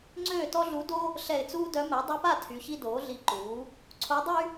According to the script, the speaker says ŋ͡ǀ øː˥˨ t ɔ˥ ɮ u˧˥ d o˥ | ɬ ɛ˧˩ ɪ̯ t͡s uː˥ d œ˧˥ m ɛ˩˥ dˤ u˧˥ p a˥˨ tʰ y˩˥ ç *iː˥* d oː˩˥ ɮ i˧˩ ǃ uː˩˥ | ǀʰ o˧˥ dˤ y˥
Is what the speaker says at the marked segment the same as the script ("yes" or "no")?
no